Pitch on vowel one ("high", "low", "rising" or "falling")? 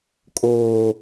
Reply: low